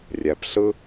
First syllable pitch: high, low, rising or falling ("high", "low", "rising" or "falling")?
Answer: low